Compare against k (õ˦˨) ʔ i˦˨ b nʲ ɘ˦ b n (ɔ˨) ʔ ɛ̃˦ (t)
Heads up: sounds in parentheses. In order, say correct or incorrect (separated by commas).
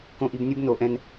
correct, incorrect, incorrect